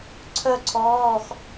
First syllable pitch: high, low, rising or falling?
high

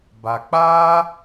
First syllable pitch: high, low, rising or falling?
low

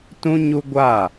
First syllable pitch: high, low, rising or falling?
high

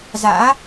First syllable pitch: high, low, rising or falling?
rising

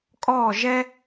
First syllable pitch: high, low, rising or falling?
falling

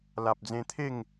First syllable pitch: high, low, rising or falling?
low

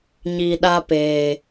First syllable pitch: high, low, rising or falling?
low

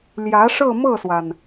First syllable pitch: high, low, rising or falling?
rising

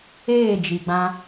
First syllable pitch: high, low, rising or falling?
falling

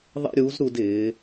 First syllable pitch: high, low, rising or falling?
high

